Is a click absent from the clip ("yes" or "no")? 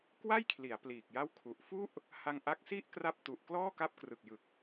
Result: yes